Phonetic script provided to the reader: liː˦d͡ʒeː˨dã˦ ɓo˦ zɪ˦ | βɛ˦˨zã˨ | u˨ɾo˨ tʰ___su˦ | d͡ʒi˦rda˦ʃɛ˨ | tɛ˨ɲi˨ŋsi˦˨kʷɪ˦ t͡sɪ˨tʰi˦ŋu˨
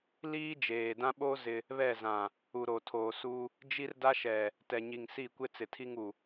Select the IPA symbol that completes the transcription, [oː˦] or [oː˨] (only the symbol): oː˨